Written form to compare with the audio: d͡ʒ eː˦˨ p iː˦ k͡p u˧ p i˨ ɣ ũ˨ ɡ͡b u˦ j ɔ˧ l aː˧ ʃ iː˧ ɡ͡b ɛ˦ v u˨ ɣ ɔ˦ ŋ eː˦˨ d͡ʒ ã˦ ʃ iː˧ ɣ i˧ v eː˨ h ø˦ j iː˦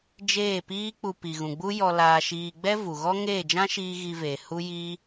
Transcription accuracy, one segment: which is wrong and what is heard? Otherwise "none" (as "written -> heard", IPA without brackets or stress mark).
ø˦ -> u˦